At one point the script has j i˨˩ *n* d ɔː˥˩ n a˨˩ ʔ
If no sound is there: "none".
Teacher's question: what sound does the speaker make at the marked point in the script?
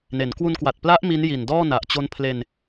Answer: n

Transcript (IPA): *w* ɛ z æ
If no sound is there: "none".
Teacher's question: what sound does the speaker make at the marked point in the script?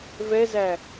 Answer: v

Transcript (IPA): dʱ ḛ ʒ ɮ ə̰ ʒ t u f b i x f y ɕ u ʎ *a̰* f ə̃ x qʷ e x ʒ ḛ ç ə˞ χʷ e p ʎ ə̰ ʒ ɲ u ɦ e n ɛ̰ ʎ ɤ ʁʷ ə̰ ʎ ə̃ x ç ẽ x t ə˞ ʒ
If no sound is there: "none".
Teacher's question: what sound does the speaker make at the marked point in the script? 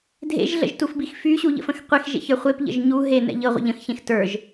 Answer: ə̰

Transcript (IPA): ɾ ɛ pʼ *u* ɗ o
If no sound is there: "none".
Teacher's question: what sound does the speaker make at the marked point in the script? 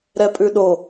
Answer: ʉ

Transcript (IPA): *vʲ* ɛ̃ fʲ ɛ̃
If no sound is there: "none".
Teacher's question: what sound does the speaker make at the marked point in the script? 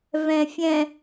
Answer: v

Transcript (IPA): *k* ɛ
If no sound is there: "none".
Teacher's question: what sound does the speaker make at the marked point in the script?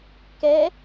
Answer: k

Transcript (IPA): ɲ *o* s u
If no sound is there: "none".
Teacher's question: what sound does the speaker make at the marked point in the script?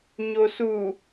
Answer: o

